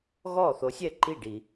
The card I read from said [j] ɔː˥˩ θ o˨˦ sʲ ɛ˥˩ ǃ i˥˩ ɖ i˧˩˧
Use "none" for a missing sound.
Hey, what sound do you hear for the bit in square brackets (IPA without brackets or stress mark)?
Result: ɣ